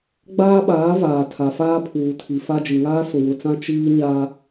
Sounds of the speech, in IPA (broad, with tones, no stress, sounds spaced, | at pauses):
ɡ͡b aː˦ ɓ aː˨˦ v aː˨ tʰ a˨ f aː˦ pʰ uː˨ tʰ i˨ f a˦ d͡ʒ i˨ ŋ aː˦ s ʊ˨ w ʊ˨ t͡s ã˦ t͡ʃ iː˦ ɲ a˦